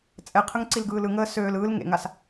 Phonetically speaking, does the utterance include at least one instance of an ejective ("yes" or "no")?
yes